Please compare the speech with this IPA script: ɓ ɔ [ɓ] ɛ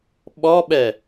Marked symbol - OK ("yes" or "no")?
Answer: yes